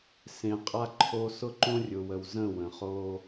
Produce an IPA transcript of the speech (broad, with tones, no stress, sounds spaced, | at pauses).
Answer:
s ẽ˨ qʼ a˦ ǃʰ o˦ s ʊ˦ ǃ õ˦ rʲ ʊ˨ w ə˨ w z ə̃˦˨ w ə̃˨ χ o˦